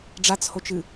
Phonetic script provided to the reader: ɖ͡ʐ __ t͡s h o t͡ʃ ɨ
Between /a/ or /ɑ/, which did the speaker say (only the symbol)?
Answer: a